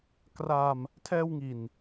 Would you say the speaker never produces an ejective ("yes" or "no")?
yes